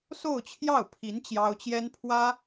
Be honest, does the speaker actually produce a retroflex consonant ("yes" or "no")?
no